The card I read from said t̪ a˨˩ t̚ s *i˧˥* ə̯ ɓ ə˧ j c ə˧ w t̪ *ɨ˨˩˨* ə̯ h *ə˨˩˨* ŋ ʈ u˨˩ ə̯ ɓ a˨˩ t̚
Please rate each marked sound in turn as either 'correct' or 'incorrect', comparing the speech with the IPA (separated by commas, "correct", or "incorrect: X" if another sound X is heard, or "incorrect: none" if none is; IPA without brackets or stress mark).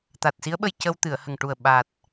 correct, correct, incorrect: ə˨˩